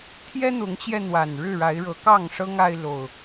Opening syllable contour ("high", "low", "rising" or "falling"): high